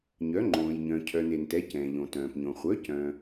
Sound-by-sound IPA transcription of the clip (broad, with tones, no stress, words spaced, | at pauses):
ɲœ˨˥ŋ͡ǃõː˨jɲœ̃˨ cʰœ˨n e˨ntɛ˨˥ cɛ̃ː˨ʎõ˨tœ̃ː˨pɲõ˨ χʷœ˨˥cœ̃˨